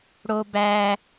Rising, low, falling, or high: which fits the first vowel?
high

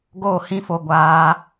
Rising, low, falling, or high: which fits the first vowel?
falling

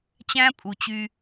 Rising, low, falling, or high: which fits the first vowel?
high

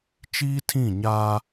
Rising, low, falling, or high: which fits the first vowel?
high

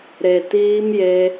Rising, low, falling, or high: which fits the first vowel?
low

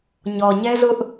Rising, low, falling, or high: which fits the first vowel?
low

